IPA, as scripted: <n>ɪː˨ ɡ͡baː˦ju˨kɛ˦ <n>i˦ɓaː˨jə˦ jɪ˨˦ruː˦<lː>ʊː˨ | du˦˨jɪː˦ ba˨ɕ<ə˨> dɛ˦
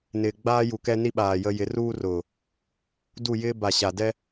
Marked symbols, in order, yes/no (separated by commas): yes, yes, no, no